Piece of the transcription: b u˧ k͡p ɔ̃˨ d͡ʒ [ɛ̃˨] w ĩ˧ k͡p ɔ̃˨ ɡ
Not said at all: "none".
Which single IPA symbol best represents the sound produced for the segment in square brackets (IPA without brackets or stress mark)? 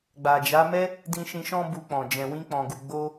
ɛ̃˨